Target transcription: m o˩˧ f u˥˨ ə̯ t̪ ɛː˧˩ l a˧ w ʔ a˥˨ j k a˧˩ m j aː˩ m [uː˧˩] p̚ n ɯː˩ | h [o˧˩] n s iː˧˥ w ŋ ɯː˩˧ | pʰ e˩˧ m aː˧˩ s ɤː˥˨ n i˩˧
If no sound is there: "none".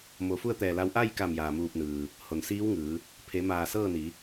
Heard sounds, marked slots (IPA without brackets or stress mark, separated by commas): uː˧˩, o˩